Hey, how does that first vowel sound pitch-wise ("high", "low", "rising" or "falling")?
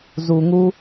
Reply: low